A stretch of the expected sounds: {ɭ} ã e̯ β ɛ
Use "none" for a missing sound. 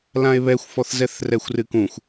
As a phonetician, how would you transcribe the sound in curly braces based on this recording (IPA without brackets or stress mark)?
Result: l